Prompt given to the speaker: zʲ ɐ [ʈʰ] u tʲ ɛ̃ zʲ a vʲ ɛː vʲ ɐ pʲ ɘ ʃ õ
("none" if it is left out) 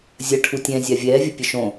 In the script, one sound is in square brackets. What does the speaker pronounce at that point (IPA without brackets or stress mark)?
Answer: ʈʰ